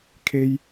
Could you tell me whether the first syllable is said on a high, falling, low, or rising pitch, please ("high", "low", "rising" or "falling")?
high